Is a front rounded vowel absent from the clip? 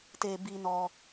yes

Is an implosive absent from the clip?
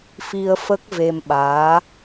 no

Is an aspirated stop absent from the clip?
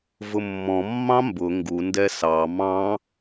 yes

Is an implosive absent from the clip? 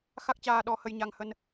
no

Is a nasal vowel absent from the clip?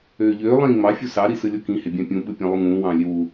no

